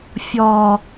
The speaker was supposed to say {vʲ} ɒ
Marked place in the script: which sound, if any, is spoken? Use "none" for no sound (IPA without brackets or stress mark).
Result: fʲ